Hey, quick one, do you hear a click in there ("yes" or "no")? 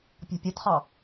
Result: no